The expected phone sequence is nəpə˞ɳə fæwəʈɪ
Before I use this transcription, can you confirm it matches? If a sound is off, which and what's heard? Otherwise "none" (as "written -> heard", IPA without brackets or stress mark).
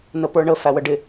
ʈ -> ɖ